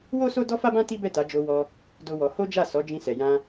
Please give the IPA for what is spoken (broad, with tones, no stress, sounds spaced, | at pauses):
w o˦ s o˦ d ɔ˦ f a˦ b ã˦ t i˦ b ɛ˦˨ t a˨˦ d͡ʒ o˧ w ɔ˧ | d o˦ w ɔ˧ h o˦ d͡ʒ a˦˨ s ɔ˨˦ d͡ʒ ĩ˧ s ɛ˨ j ã˧